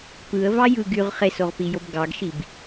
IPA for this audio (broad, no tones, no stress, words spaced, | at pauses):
pɯə̯vɑ jɯ ɡyʁ χesoʁpijob ɡɑɡʃib